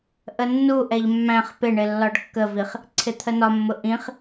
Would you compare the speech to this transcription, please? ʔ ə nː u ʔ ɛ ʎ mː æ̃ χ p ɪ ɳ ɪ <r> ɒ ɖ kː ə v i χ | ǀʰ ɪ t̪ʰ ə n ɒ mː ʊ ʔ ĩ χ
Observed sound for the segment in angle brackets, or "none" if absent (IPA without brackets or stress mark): lː